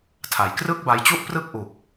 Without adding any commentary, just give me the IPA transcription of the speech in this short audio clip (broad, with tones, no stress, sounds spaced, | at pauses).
tʰ a˨˩ j k r ɯ˥˩ k̚ b a˧ j t͡ɕ u˥˩ ʔ p r ɯ˥˩ k̚ ʔ u˨˩ k̚